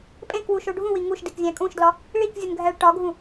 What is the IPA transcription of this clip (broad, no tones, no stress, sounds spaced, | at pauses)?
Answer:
pʼ ẽ k w u ʃ o ɖʱ ũ w i ŋ u ʃ d i k zʲ æ̃ kʼ ũ ʃ d l ɒ | ɭ i k zʲ u n ɡʱ æ ɭ ʈ ɒ ɡʱ ũ